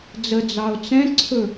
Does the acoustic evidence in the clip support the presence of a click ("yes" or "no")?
yes